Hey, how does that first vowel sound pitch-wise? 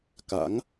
rising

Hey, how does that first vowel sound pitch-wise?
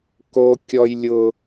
high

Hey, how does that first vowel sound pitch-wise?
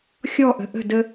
falling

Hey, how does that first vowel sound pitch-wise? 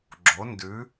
rising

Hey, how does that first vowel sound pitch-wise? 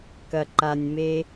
low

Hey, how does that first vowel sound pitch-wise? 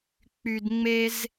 high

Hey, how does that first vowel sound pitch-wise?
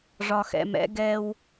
low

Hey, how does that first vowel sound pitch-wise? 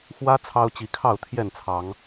high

